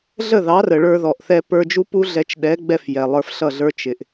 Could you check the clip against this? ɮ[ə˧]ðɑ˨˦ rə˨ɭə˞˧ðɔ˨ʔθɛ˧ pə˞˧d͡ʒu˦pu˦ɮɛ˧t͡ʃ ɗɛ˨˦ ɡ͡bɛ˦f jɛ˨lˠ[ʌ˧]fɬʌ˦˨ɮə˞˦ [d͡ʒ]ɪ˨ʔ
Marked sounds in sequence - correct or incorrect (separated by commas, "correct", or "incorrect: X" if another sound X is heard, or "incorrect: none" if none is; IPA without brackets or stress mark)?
incorrect: ə˦˨, incorrect: ə˞˧, incorrect: t͡ʃ